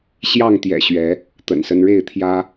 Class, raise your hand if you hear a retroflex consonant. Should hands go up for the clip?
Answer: yes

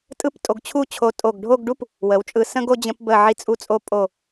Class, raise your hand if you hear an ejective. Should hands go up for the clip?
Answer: yes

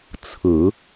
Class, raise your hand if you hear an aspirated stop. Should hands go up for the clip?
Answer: yes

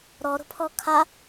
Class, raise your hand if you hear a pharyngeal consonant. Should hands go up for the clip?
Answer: no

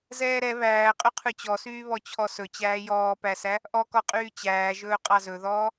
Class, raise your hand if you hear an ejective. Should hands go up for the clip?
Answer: yes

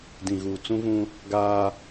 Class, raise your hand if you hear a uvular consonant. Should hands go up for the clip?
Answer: no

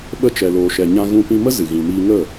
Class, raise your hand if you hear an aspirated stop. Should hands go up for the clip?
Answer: no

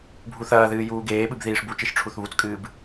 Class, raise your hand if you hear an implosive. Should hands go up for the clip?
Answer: yes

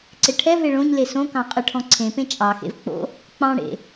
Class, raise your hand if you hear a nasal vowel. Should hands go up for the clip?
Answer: yes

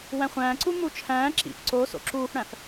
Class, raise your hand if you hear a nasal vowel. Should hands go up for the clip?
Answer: yes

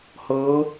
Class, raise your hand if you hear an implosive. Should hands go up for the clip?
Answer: no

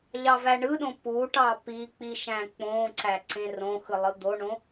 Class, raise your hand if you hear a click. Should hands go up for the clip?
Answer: yes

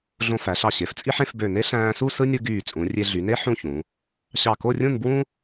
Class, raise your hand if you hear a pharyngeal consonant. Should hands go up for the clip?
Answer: yes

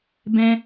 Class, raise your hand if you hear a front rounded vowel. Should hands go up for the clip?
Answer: no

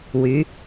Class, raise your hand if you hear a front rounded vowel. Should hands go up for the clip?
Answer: yes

